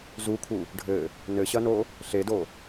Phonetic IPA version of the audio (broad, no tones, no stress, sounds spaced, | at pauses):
z u kʰ u | ɖʱ ɘ | n ɘ ɕ ɐ n o | ɬ e d o